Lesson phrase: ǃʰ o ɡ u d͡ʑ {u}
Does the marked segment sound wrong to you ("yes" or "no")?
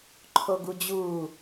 no